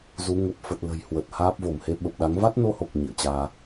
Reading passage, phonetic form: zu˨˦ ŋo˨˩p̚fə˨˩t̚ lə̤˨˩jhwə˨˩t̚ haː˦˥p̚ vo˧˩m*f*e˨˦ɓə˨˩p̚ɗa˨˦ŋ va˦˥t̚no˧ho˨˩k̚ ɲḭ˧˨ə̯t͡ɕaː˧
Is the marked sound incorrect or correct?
incorrect